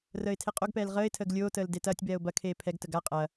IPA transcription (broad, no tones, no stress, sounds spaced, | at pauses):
r əː ɪ̯ tʰ e qʼ o ɡ p ɛː l ʁ əː ɪ̯ tʰ əː ɡ lʲ oː t əː l d e t ɐː tʲ b ɛː ʊ̯ b ɐ kʰ eː pʰ ɛ ɡ t ə ɡ a qʼ ɐː